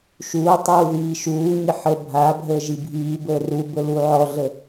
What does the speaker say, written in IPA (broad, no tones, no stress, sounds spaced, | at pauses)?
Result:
ʃ uː tˤ uː ð iː ʃ uː ɲ ɪ ħ ə bʱ a bʱ əː ʒ i bʱ iː b əː r u b ə l u ʕ ɔ ɮ ə